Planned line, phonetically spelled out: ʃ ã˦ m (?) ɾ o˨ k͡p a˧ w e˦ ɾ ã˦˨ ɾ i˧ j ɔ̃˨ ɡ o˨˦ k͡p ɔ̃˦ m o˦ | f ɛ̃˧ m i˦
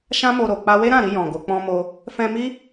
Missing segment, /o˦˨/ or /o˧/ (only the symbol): o˧